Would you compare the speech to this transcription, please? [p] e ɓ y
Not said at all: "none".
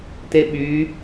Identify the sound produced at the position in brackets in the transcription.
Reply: t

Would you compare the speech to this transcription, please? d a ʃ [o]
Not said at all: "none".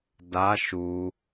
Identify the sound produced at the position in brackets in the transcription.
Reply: u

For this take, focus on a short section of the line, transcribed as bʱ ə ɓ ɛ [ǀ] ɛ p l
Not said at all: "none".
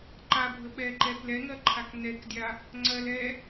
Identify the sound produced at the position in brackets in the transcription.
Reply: ǃ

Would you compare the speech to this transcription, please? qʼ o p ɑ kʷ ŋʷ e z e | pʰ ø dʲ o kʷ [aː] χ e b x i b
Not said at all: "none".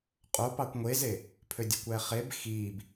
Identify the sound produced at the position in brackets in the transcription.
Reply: æː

